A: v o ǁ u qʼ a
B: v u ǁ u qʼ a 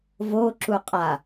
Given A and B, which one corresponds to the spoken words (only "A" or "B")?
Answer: A